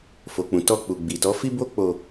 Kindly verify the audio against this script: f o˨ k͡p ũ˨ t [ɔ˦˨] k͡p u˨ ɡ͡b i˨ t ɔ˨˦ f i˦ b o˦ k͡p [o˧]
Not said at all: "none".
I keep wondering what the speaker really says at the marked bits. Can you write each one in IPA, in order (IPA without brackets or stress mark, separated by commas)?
ɔ˧, o˧